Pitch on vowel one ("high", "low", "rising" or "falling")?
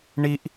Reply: high